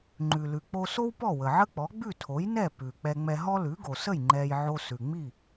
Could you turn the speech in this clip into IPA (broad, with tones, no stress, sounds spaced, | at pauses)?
ŋ͡ǃ ʉ˩ l ʉ˩ k͡p o˧ s o˥ w p ɔ˥˩ w ə˩ ʕ ə˥ k͡p ɔ˩˥ ɡ͡b ʉ˥˩ tʰ o˩˥ j n ɛ˥˩ p ʉ˩ k͡p ɛ˧ ŋ͡m ɛ˧ ɦ ɔ˥ l ʉ˩˥ ɡ o˩ s ə˥˩ j ŋ͡ǃ ɛ˧ j ʕ o˧ s ʉ˩ ŋ͡m i˥˩